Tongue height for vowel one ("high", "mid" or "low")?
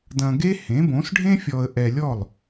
low